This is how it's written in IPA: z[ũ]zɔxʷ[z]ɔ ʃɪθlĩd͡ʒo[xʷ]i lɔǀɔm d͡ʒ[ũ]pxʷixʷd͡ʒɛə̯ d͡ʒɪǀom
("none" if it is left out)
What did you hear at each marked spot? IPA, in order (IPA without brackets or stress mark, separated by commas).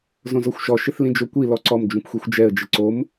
õ, ʃ, kʷ, ũ